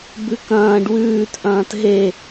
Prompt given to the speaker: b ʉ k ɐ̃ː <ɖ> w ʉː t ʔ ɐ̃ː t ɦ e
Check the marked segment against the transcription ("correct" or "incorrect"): correct